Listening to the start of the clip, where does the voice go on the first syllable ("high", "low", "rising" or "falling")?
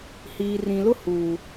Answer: low